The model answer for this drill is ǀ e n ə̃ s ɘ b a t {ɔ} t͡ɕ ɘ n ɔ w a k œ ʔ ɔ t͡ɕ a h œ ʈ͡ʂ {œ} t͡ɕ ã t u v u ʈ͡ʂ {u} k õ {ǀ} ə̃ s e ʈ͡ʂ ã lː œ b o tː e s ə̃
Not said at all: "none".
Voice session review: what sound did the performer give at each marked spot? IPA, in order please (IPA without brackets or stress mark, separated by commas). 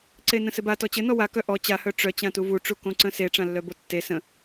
ɔ, œ, u, ǀ